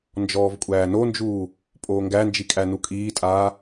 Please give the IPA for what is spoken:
nd͡ʒɔːvkʷʼæːnond͡ʒuː | pʼoːŋɡænd͡ʒi kʼænukʼiːtʼaː

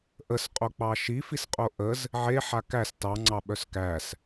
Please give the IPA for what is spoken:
ʔəsqʼok͡pɑ ʃifisqʼo ʔəz | ʕeħa kæs tɑŋ͡ǀɑɓœs kæs

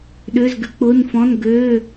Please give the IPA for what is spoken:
ɗʏː˧˥˧zɡʏ˦˥k͡pʊː˧˥˧nfɔ̃˧˥˧n ɡøː˧˥˧

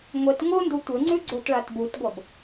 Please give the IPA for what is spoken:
ŋʷet ŋondu tʷɘŋ͡ǀʉ ɡ͡ǀotɭatbutɡʷʌb

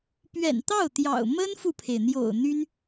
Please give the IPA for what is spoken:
pɥɛ̰˨˩nt̪ɑ˥˩ʊ̯t̪jɑ̰˨˩ʊ̯ mə˥nfu˨pʰe˩ɪ̯n̪jo̰˨˩ʊ̯ n̪y˥n

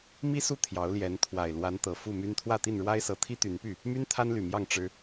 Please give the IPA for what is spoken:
mi˦su˥˨ t̪ʰjɑ˨˦ʊ̯ljɛ˨˦n t̪ʰwa˨˩ɪ̯lwa˨˦n t̪ɤ˨˩fu˥˨my˦n t̪ʰwä˥˨t̪i˥˨nɻwa˦ɪ̯sɤ˨˦ t̪ʰi˦t̪y˨˦npy˥˨ | my˦n t̪ʰa˦nly˨˩mjɑ˥˨ŋ ʈ͡ʂɻ̩˦

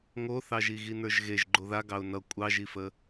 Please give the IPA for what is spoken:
ŋoθɑʒi ɣinə˞ʒɣeʒ ɡ͡ǃoða ɡɑʊ̯nʌ kʷʼɑʒifə

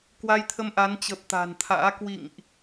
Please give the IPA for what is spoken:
kwa˧jt̪ʰə˧mʔa˨˦n t͡ɕə˨˩p̚t̪a̤˨˩nt̪ʰa̰ː˧˥ kwḭ˧˨ŋʔ

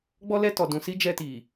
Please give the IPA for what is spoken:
ɡ͡bɔ˦lɛ˦tɔ˨ dũ˨si˦ d͡ʒɛ˦ti˨

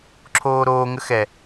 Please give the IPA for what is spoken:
ǁʰoːɾoː ŋəxɛ

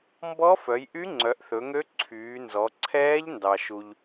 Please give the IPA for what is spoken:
mbɔ˦˥fœ˩˧jʔy˦˥ ŋ͡ǀœ˩˧ʔθɵ˩˧ŋø˦˥ ǀʰyː˩˧nzɔ˩˧ ǀʰɛː˦˥ʎ ndɑ˩ʃu˩ʎ

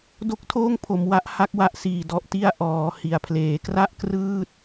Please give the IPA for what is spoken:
do˦˥k̚tʰoː˥˩ŋ pʰo˩˦mwa˦˥ʔ ha˦˥k̚wa˦˥ʔsiː˨˩ dɔ˨˩ʔti˦˥a̯ ʔɔː˩˦hi˩˦a̯pʰleː˩˦ kra˥˩ʔkrɯː˥˩t̚

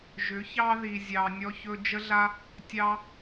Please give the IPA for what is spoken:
ʒʏ˨˦çɑ˦ ði˧zʲɑ˧ nʲɔ˧çɵ˧ d͡ʒə˦ɮa˦ | tʲɑ˦

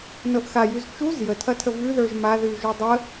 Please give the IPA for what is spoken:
nɤʔxajʉz t͡ʃuz jətʰɐtʰə vʉðə˞ʒ maðʉʒʉ dˤə

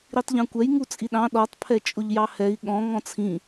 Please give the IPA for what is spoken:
ɾitˤʎɑ̃kʷɛj ŋut͡sʼiɗɑ̃ ɗɔtˤ pʰɛt͡ʃʼʊʎjɑhɛi̯ ɠɔ̃ ŋɔ̃t͡sʰĩ

